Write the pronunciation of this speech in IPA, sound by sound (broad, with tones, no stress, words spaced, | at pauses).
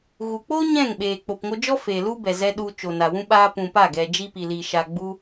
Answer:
ɣu˨k͡po˦ ɲɛ̃˦˨ŋɓeː˨ k͡po˨pŋo˧d͡ʒɔ˦ feː˨lu˦bɛ˨zɛ˧ ɗu˧t͡ʃo˨na˨wũ˦ ɓaː˧pũ˨ pa˦˨ ɡɛ˨d͡ʒi˧pi˨liː˨ ʃa˨ɡ͡bu˧